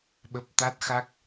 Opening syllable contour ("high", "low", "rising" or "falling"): low